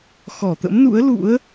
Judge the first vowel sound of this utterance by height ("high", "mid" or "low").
mid